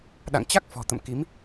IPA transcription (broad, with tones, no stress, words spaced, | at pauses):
ɗa̰˧˨ŋt͡ɕa˦˥k̚ fɔ̤˨˩t̪ə̰˧˨mki˨˦m